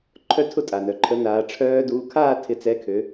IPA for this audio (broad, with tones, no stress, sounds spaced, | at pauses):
ǃʰ œ˥˧ tʰ ʊ˥˧ tʼ a˩ n œ˩ ǃʰ ə˨˥ n aː˩˧ ʈ͡ʂʰ œː˦˥ d uː˨˥ kʰ aː˥˧ tʰ ɪ˨˥ t͡s ɛ˨˥ kʰ ø˩˧